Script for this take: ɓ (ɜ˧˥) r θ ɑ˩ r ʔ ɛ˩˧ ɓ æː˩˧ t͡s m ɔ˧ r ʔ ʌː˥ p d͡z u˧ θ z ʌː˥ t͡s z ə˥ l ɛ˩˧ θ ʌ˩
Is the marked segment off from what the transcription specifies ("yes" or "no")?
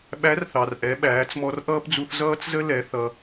yes